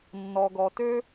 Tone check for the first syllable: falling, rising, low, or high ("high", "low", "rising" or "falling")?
low